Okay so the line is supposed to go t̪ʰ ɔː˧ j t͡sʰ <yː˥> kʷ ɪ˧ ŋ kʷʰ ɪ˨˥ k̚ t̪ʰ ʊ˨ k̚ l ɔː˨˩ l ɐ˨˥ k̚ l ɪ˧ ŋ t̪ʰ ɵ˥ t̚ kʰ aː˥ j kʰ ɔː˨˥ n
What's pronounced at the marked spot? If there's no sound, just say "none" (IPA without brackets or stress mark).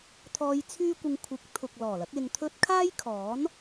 yː˥